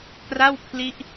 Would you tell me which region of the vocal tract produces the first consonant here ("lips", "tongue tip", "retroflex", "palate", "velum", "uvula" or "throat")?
velum